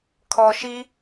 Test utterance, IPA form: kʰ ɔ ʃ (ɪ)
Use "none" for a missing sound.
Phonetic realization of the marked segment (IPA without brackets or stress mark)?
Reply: i